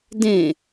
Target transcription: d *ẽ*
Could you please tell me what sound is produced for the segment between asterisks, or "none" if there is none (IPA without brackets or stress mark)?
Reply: ẽ